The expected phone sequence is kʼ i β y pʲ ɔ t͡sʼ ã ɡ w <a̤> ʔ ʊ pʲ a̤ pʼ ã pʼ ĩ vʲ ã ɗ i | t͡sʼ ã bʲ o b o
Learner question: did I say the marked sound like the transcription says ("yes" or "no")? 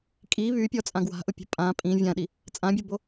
yes